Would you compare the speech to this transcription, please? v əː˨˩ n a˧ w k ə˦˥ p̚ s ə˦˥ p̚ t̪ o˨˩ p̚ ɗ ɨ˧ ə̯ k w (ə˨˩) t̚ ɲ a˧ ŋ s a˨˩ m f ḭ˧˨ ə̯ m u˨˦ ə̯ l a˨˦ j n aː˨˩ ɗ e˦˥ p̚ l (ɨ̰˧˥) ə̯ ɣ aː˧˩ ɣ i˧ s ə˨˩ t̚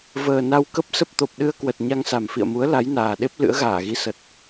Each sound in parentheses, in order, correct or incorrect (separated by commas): correct, correct